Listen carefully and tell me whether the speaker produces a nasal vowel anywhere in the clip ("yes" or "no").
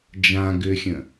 yes